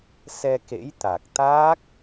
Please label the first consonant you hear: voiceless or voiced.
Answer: voiceless